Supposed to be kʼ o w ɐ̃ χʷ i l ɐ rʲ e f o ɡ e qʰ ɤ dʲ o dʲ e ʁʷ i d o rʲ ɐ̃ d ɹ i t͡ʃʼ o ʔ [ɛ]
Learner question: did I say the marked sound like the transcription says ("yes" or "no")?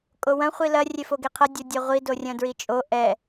yes